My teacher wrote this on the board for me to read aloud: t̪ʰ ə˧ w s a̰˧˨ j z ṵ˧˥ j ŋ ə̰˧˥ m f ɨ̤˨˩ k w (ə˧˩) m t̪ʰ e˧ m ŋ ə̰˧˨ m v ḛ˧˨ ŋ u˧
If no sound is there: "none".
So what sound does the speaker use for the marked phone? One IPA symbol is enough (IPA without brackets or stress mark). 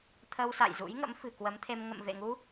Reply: ə˨˦